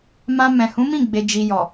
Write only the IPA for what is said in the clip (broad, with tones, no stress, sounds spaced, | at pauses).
m ã˧ m ɛ̃˨ h ũ˨˦ m ĩ˦˨ ɡ͡b e˨ d͡ʒ i˨ j ɔ˨